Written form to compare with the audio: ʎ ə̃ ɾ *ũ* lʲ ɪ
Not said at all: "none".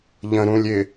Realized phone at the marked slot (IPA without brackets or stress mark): ũ